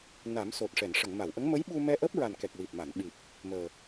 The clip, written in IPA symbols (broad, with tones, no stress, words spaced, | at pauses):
na˨˩˦mso˨˩t̚ ʂɛ˨˩˨nʂə˨˩˨ŋma˨˩˨wʔə˧˥ŋ mə˧˥jɓu˧ mɛ˧ʔəː˦˥p̚ɹa˨˩nkɛ˨˩k̚ wi˨˩p̚ma˨˩˨n ɓi˨˩p̚ | məː˨˩